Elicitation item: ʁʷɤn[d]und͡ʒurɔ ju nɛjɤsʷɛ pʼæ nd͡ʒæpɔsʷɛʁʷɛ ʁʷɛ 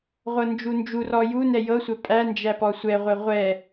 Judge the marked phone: incorrect: d͡ʒ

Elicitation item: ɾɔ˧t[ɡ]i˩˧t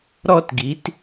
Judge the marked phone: correct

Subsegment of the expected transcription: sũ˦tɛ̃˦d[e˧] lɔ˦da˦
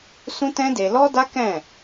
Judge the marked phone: correct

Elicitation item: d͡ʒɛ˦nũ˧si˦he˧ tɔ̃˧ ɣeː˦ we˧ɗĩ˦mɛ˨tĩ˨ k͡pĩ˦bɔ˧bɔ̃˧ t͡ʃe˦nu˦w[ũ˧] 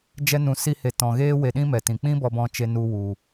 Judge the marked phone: incorrect: u˧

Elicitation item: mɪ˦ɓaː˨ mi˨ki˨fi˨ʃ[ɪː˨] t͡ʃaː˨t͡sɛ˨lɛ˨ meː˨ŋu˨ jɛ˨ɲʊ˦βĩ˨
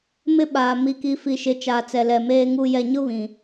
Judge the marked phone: incorrect: ɪ˨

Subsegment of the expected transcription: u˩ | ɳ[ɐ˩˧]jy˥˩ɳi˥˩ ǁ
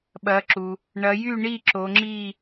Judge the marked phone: correct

